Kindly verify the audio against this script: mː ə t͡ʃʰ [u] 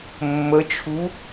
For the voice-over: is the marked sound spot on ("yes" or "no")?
yes